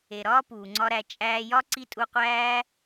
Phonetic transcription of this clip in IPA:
e˨ ɾ ɒː˦ p uː˨ ŋ͡ǀ ɒ˦ ɾ æ˧ t͡ʃʼ æː˧ j ɒ˦ ǀ i˦ tʼ u˧ qʷ æː˦

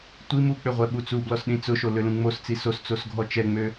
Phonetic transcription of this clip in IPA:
tʷ i m u k͡p ʏ ʁʷ ɛ ɓ u t͡s u b l ɔ s ɗ ĩ t͡s ʊ ʃ o l ø l ũ ŋ͡m o s t͡s i s o s t͡s o s ɡʱ ɔ t͡ʃ ɛ ŋ͡m ø

